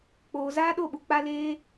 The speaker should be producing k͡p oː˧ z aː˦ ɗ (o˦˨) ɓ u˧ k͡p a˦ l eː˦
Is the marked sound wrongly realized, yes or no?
no